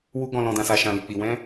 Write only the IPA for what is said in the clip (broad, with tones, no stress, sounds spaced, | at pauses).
w u˧ ɡ ɔ̃˨ l ɔ̃˨ d ã˨ s a˨ ʃ ã˨ l i˨ k͡p i˨ w ɛ̃˧